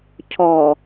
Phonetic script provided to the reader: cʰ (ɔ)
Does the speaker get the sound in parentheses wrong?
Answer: no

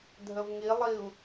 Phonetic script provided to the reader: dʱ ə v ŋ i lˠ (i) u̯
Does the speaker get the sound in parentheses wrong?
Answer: no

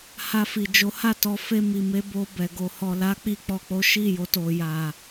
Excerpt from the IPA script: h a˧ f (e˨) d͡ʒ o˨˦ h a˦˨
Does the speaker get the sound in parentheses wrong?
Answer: yes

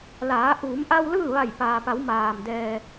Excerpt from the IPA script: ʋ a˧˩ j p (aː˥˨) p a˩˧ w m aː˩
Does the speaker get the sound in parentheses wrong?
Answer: yes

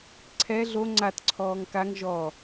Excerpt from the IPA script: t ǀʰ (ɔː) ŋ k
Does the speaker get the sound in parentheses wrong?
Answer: no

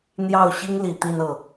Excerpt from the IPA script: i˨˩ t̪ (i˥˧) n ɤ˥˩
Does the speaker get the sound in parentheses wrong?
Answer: no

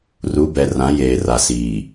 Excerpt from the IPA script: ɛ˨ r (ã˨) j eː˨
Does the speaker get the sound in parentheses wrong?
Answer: yes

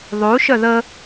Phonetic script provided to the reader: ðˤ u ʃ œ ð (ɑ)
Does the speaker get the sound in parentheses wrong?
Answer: yes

